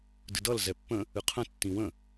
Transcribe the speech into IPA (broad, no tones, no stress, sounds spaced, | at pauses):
d ɨ d ʌ l z ɛ pː ə̃ | ɨ qʰ ə̃ tː ĩ w ə̃